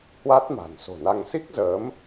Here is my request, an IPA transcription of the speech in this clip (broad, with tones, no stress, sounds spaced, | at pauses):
h w a˦˥ t̚ m a̤˨˩ n s o̤˨˩ n a˧ ŋ s i˦˥ k̚ z əː˨˦ m